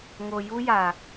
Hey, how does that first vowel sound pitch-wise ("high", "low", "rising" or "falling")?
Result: low